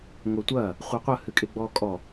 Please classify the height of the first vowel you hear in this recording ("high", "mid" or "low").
mid